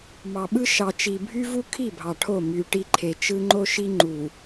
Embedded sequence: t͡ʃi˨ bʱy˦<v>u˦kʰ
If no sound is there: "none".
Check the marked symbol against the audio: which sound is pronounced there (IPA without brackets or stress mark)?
v